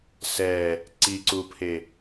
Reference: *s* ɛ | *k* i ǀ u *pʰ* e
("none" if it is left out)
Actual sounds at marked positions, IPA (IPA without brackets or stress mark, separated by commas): s, ǀ, pʰ